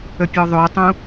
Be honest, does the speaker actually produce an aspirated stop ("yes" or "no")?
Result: no